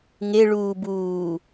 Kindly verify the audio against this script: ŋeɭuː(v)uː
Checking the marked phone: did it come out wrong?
yes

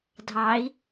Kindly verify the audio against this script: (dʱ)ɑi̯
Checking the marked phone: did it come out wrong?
no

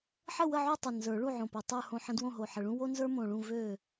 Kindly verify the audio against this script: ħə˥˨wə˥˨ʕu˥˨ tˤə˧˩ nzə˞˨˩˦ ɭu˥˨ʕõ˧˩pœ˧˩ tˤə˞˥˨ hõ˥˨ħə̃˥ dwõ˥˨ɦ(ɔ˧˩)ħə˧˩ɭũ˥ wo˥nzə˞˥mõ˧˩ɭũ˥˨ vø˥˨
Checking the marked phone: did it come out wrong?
yes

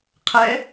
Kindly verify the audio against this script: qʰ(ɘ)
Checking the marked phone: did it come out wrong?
yes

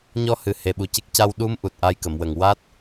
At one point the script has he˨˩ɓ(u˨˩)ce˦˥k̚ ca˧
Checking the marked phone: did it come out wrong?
no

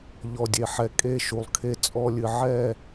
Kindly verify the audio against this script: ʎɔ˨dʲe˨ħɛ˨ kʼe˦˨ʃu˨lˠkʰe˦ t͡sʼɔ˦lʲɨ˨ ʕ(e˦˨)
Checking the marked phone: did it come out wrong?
yes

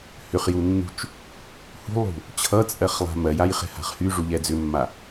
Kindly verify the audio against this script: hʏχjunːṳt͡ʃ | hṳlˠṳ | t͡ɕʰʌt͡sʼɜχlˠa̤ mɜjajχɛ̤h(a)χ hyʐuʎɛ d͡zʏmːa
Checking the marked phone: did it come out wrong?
yes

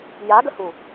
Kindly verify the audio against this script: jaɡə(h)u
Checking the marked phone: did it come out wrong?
no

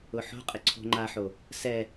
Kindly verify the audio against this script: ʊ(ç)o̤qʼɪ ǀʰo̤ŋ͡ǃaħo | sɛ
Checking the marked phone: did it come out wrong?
yes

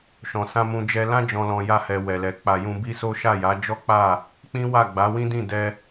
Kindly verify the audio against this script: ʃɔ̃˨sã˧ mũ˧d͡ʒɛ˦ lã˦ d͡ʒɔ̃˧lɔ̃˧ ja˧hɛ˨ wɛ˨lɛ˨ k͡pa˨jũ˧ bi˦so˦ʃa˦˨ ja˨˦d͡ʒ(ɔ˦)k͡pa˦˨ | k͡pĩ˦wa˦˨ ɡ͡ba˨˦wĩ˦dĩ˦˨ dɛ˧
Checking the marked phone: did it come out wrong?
no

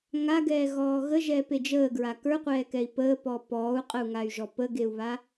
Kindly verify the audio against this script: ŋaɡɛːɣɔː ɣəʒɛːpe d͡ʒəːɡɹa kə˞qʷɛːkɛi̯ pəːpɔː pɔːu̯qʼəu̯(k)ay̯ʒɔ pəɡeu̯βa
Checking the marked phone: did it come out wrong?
yes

